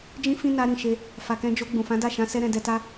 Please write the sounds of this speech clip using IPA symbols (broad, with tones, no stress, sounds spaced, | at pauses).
d͡ʒ ĩ˦ f ĩ˦ n a˧ ɾ ĩ˨ ʃ e˧ | f a˨ k ɛ̃˧ d͡ʒ o˧ ɡ͡b ũ˨ f ã˨˦ d a˦˨ ʃ ã˧ s ɛ˦ ɾ ɛ̃˧ d ɛ˧ t a˦